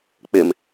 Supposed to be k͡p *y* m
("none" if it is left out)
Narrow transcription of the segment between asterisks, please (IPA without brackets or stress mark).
ɪ